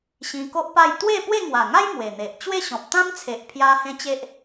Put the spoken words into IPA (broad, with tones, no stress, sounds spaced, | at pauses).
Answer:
ɕ ĩ˧ k o˦ ʔ p a˥˧ j t̪ w e˥˧ p w e˥˧ ŋ w a˨˩ ŋ a˦ j m w e˨˩ n̪ e˨ ʔ t͡ɕ w e˥˧ ɕ ɔ̃˨ p̚ t̪ ã˦ m t͡sʰ e˨ ʔ pʰ j a˧ h ẽ˧ t͡ɕ e˦ ʔ